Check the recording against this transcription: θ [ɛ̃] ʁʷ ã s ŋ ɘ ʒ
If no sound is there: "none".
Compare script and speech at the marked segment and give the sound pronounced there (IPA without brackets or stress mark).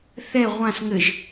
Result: ɛ